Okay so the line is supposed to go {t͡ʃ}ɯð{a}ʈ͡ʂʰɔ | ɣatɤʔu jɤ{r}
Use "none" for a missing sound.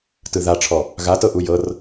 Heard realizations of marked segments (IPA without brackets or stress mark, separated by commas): t, a, r